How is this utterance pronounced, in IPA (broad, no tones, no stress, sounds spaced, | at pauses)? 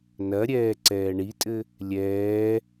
n ɐ ɾʲ ɛː ǀ ɛː ɳ i tʼ ɘ | lʲ ɛː